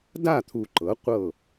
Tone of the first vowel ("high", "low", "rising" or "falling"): falling